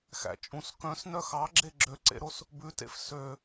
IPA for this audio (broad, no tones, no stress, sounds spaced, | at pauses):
x æ̰ t͡ʃʼ ũ s k œ̃ s n œ x ɑ ɡ͡ǁ e ɡ͡ǁ ø ǀ ḛ ɾ o s | b ʉ t ḛ f s ø